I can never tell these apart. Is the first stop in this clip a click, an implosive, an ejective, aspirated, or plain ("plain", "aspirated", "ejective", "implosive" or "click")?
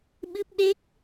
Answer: implosive